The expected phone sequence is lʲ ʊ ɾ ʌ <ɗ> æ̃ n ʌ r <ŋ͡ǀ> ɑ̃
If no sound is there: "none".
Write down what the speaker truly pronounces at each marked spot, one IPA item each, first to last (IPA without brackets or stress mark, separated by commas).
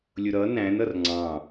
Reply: n, ŋ͡ǀ